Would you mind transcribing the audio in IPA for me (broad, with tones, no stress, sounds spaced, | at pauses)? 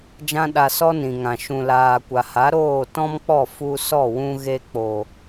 d͡ʒ ã˦ ɗ a˧ s ɔ˦ n ĩ˨ ŋ ã˨ ʃ ũ˨ l aː˨ kʷ a˨ h a˨˦ ɾ oː˦˨ t ɔ̃˦ m k͡p ɔ˦˨ f u˧ s ɔ˦˨ w ũ˧ ɣ e˧ k͡p o˨